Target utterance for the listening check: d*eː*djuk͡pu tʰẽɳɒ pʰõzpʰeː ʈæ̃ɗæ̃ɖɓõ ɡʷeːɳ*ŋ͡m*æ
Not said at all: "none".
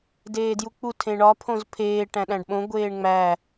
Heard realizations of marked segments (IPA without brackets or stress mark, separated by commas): eː, ŋ͡m